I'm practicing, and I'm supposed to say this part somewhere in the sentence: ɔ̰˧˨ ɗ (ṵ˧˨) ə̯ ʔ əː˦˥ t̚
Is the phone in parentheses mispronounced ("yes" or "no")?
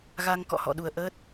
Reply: yes